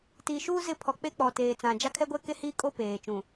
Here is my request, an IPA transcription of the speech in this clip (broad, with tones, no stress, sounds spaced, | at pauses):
t i˨ ʃ uː˦ z ɪ˦˨ pʰ ɔ˨ k͡p e˦ k͡p ɔ˨ t eː˨ t͡s ã˨ d͡ʒ a˦ kʰ ɛ˦ ɡʷ ɛ˦ k e˦ h iː˦ kʼ o˦ p eː˨ t͡ʃ ũ˨